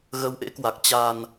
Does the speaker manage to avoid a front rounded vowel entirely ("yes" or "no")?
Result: yes